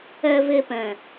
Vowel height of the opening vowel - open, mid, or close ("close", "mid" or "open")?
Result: mid